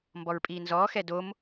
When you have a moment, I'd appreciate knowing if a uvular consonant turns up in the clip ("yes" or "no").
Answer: no